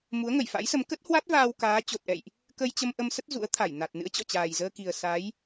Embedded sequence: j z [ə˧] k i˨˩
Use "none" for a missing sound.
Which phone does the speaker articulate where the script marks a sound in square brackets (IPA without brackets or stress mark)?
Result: əː˧